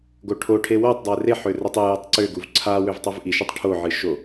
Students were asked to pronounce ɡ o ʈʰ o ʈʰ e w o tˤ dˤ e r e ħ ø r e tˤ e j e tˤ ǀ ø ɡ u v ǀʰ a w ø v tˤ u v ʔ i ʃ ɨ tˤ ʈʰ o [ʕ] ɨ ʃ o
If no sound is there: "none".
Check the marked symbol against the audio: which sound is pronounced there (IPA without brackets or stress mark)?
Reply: ʕ